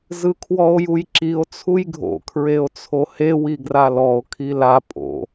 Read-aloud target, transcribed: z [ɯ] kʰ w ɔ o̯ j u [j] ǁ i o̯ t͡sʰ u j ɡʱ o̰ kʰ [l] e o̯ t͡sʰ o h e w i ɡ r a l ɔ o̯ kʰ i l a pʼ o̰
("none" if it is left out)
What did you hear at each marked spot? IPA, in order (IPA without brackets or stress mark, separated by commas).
ɯ, j, ɹ